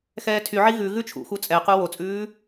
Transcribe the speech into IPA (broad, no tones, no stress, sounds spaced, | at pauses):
x ɛː tʰ y ʕ i ɣ ʉ ɣ ʉ t͡ʃʰ ṵ x u t͡sʼ ɛ q u w o t͡sʼ ʉː